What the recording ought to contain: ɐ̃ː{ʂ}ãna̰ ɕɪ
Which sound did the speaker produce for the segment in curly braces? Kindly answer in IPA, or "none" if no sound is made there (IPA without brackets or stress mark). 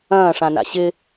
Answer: ʂ